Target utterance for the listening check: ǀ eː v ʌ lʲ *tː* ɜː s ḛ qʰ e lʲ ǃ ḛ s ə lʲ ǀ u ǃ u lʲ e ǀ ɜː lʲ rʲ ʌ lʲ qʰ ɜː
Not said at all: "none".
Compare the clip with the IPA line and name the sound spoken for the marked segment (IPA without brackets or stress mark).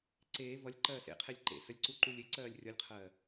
ǃ